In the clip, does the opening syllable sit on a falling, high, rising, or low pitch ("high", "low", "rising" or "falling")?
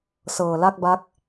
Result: low